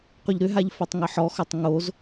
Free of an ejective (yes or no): yes